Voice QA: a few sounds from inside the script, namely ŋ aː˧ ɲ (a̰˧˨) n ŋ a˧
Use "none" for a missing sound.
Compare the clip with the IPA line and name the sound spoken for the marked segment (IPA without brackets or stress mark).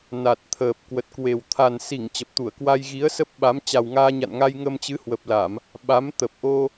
a̰˧˨